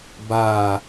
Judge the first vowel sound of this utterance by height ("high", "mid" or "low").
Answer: low